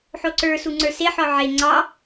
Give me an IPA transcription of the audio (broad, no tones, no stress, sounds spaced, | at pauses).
ħ o ǀ ə˞ s u ŋ͡ǀ ə˞ s e ħ ɔ ʕ e ŋ͡ǀ ɑ